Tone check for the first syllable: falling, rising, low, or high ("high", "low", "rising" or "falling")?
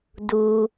low